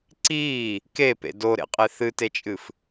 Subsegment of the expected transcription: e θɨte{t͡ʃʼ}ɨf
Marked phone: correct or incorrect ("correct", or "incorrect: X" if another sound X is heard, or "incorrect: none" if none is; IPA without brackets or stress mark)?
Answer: correct